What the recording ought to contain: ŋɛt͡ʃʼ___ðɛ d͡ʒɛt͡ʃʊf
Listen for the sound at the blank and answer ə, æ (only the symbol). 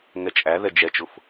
æ